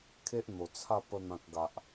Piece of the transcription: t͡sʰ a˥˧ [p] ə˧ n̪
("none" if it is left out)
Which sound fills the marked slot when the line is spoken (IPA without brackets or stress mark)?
p